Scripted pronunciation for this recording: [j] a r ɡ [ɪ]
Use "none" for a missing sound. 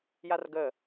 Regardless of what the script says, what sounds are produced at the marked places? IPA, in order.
j, ə

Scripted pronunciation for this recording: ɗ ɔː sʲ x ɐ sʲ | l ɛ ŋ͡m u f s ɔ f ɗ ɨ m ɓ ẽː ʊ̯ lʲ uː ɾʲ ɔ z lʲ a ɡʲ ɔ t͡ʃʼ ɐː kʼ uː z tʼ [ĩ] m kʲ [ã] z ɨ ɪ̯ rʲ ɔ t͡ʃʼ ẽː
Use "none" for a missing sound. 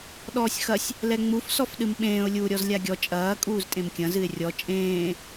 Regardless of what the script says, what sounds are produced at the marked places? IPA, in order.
ẽ, ɐ̃

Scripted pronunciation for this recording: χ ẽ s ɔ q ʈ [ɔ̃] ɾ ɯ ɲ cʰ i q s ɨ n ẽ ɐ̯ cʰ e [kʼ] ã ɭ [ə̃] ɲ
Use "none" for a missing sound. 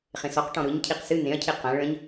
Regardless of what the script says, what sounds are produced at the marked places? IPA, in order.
ɔ̃, q, ə̃

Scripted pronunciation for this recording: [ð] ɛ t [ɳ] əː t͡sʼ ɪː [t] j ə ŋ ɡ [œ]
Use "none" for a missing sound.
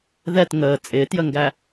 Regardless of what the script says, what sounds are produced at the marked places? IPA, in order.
ð, ŋ, t, æ

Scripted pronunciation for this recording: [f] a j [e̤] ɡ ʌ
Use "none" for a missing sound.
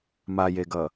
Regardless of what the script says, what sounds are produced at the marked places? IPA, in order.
m, e

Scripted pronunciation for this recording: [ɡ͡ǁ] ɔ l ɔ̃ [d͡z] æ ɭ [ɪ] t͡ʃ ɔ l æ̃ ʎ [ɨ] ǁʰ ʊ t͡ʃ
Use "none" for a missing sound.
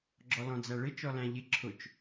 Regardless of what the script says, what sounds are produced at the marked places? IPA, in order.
ɡ͡ǁ, d͡z, ɪ, ɪ

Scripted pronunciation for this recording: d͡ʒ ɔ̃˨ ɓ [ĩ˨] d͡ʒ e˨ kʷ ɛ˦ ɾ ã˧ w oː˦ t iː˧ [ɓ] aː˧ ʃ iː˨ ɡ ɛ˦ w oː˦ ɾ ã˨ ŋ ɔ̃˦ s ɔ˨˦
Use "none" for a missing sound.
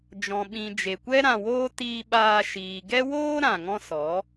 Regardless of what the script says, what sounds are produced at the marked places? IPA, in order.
ĩ˨, ɓ

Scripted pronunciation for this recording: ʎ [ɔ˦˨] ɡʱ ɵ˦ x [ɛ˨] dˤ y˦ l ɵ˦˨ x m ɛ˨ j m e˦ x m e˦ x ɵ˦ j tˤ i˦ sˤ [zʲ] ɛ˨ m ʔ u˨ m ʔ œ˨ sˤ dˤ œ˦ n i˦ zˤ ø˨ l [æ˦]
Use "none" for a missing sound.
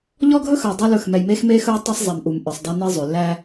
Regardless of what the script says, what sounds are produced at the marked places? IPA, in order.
ɔ˦, œ˨, zˤ, æ˦

